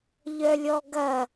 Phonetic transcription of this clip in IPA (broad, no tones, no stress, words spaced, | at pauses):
ʎœlʲɔɡɐ